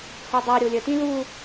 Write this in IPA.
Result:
h o dˤ ɛ ɾʲ o lʲ ə t ĩ l u

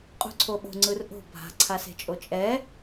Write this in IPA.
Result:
qʼ ṳ ǀʰ o ɓ o̤ ŋ͡ǀ ɯ r ʔ o̤ bʱ a̤ ǀʰ a s e̤ t͡ʃʼ o t͡ʃʼ ɛ

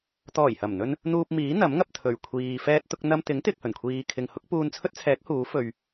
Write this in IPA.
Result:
t̪ ɔː˨˩ j h ɐ˨˩ m n̪ ɵ˧ n | n̪ uː˧ p̚ m iː˨˥ n̪ ɐ˨˥ m ŋ ɐ˧ p̚ t̪ʰ ɵ˨˩ ɥ kʷʰ iː˨ f ɛː˧ t̚ t̪ ʊ˧ k̚ n̪ ɐ˧ m t̪ ɪ˨˥ ŋ t̪ ɪ˨ k̚ h ɵ˨˩ n kʷʰ iː˨ kʰ ɪ˨ ŋ h ʊ˨˥ k̚ p uː˧ n t͡sʰ ɵ˥ t̚ t͡sʰ ɛː˨˥ k̚ h uː˨˥ f ɵ˧ ɥ

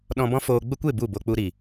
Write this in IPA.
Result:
ɗ ɔ̃˧ b ɔ̃˦ f oː˧ ɡ͡b ə˦ kʷ e˦˨ b u˦˨ b o˧ k͡p u˧ ɾ i˨

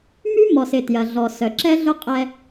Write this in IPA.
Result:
m y˦ m ɔ˨ s ɪ˨ t j ɐ˨ ɮ ɔ˨ s œ˨ ǁ ɛ˦ ɮ ʊ˦ qʼ ɛ˧

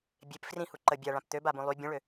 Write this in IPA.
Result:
bʲ e p f r ĩ h u ǃ ə bʲ a ɭ ã p t̪ ø b a b ũ lˠ y bʲ ũ ɭ ø

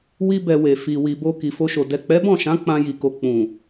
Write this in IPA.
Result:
w i˦ b ɛ˧ w e˨ f i˨ w i˨ b o˧ k i˨ f o˧ ʃ o˨ d ɛ˨ k͡p ɛ˨˦ b ɔ̃˦˨ ʃ ã˨˦ k͡p ã˧ j i˨ k o˨ k͡p ũ˨

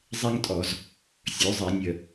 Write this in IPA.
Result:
zˤ ɛ˥ ŋ tʼ ɔ˧˩˧ z | sʲ ø˩˥ zˤ i˧˩˧ nʲ ə˧˩

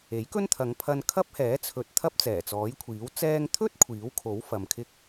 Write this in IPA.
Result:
e˨˥ j k ɵ˥ n t̪ʰ ɐ˨˧ ŋ pʰ ɐ˧ n kʰ ɐ˥ p̚ h ɛː˨˥ t͡sʰ ɵ˨˥ t̚ t̪ʰ ɐ˥ p̚ t͡s ɛː˨˩ t͡s ɔː˨˥ j kʷʰ iː˨˥ w t͡s ɛː˧ ŋ t̪ʰ ɵ˥ t̚ kʷʰ iː˨˥ w kʰ o˨˥ w f ɐ˨ m kʰ ɪ˥ k̚

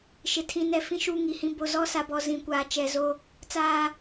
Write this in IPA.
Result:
ʃ ɪ˨ tʰ ĩ˨ n ɛ˨ f ĩ˦ ʃ uː˦ ŋ i˨ h ĩ˦ b o˨ z ɔ˦ s a˨ b ɔ˨ z ĩ˨ kʷ aː˨ t͡ʃ ɛ˨ z o˦ | t͡s aː˦

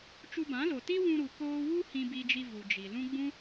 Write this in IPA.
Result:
t͡ʃ u˧ b ã˨˦ l o˨ t i˦ w ũ˧ ɾ u˨ k oː˧ w u˦ h ĩ˧ b i˧ d͡ʒ i˧ v u˨ d͡ʒ i˨ l ũ˦ ɡ͡b ũ˦

